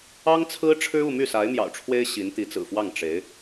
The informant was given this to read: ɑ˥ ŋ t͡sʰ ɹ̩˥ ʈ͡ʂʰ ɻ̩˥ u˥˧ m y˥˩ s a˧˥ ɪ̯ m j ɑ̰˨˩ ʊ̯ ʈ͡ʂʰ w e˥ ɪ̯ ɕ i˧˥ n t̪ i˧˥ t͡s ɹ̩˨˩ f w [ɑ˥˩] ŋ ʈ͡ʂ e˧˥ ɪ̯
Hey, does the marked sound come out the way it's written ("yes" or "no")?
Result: yes